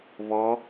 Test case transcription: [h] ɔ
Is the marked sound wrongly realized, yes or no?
yes